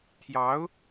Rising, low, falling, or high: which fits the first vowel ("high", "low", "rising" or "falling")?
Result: rising